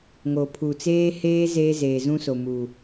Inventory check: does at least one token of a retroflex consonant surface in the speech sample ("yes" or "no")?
no